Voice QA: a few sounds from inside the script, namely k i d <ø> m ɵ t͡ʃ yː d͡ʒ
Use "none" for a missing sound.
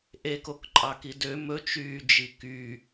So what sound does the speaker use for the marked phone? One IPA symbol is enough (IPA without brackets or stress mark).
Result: ø